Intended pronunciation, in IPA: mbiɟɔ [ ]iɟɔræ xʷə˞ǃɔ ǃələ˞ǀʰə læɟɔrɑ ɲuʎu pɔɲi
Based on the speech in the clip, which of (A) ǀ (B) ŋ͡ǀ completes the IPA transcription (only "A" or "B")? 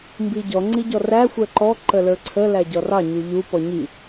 B